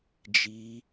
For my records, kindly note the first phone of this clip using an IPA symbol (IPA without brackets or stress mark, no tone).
d͡ʒ